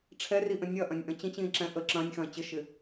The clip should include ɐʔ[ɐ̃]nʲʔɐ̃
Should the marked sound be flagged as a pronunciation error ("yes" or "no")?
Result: no